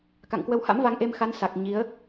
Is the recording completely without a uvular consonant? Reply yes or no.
yes